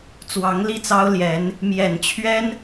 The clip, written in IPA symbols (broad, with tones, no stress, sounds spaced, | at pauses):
t͡s w ɑ˧˥ ŋ l i˥˩ t͡s ɑ˥ ʊ̯ l j ɛ˧˥ n | m j ɛ˨˩ n t͡ɕʰ ɥ ɛ˥ n